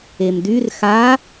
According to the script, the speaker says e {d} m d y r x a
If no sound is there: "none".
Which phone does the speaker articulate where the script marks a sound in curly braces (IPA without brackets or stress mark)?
none